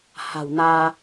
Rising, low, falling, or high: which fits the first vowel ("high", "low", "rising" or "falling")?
low